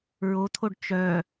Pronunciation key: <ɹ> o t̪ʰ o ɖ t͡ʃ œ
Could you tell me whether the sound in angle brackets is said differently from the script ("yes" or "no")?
no